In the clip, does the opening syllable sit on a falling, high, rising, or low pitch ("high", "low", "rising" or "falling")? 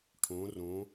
rising